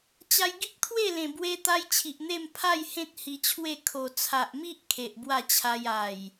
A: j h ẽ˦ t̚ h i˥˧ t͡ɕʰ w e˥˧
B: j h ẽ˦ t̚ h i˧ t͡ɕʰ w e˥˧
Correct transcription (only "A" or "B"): B